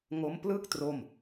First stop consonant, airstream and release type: plain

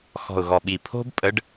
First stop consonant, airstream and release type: implosive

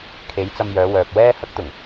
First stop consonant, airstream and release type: aspirated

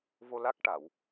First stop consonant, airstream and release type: plain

